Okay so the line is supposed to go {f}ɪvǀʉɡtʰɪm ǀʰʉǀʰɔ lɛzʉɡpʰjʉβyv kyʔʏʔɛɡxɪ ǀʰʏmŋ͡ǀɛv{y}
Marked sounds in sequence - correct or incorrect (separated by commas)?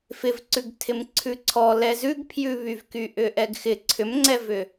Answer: correct, incorrect